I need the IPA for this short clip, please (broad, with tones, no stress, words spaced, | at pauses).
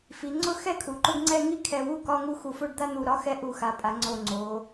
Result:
fi˩˧ ŋ͡ǀʊ˥˧xɛ˥˧ kʰu˩˧ǃʊ˥˧ɡŋ͡ǀɛ˥˧ ŋi˥˧ kʰɛ˧˩wu˥˧kɒ˧˥˧ ŋu˥˧xu˧˩fo˥˧ɖ d̪a˥˧n̪u˧˩ɾɒ˧˥˧xɛ˧˥˧ ʔu˧˩xa˩˧pʼa˩˧ ŋ͡ǀo˧˩ŋ͡ǀo˩˧